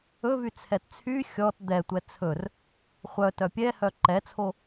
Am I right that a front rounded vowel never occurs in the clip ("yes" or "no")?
no